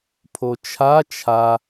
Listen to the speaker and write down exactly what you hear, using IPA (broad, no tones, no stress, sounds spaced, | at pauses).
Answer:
pʰ o t͡ʃʰ a t͡ʃʰ a